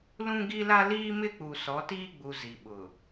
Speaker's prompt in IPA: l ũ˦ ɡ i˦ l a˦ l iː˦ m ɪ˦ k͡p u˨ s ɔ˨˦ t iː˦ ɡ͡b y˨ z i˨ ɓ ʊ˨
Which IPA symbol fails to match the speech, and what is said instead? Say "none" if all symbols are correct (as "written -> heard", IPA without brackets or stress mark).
y˨ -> u˨